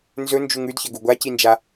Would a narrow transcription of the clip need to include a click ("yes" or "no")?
no